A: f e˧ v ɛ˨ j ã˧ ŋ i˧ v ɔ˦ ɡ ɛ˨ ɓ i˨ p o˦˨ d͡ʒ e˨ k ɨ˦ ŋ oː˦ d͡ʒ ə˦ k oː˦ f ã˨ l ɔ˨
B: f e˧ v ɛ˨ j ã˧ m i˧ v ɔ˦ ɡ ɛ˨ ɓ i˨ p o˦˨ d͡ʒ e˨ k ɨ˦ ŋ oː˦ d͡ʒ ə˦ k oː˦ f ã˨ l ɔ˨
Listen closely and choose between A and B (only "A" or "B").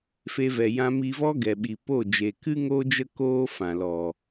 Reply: B